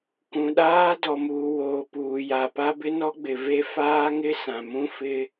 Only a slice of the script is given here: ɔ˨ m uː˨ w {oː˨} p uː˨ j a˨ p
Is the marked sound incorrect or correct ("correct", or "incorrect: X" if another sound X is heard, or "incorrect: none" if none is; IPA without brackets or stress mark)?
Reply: correct